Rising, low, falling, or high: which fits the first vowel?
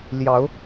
rising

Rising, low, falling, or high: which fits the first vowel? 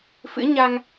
rising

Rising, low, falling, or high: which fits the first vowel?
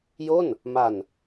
falling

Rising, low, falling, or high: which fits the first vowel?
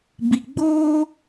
low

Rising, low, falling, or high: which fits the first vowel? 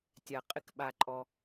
low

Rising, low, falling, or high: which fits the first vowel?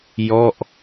falling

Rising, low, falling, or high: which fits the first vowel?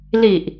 low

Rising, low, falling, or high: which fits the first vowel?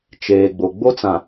low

